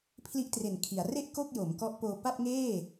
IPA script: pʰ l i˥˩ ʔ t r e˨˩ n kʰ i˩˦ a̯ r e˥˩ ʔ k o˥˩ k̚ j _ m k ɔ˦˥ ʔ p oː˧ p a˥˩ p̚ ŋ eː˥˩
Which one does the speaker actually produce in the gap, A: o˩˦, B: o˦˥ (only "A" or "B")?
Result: A